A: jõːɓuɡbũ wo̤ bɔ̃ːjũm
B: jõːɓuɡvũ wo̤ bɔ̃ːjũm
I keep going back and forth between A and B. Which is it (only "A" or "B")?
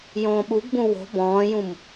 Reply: A